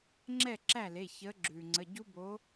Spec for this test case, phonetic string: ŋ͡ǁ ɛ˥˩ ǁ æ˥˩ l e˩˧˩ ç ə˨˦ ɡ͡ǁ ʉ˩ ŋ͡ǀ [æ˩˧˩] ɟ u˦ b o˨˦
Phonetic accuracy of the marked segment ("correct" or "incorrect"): incorrect